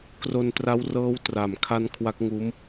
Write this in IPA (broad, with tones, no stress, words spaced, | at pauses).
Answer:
kro˧ntra˦˥w rɤː˦˥wtra˨˩m kʰa˦˥n kʰwa˦˥k̚ŋuː˦˥m